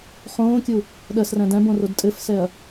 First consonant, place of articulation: uvular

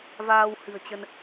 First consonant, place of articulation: labial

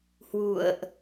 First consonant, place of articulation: glottal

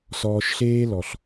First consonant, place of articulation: alveolar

